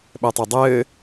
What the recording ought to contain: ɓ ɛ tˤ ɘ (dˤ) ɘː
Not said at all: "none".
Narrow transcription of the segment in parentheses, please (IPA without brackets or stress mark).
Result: dˤ